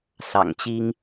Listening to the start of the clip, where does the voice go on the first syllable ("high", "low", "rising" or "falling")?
low